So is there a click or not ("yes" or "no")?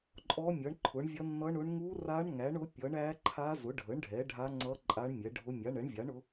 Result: yes